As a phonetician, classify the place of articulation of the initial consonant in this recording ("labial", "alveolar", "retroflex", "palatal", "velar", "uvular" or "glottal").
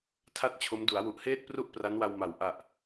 alveolar